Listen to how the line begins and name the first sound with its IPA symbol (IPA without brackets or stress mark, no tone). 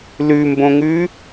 l